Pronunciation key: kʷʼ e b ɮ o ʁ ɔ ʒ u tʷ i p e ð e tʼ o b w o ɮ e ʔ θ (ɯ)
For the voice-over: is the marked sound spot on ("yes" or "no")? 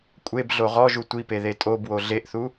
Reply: no